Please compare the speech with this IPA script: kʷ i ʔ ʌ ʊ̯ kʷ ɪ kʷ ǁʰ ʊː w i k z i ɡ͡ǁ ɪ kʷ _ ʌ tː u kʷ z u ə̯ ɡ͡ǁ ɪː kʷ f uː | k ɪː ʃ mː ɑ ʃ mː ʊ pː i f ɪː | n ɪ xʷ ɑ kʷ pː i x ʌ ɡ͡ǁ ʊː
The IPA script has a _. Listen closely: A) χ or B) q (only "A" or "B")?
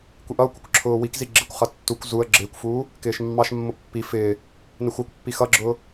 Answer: A